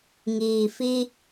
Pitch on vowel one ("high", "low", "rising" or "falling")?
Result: low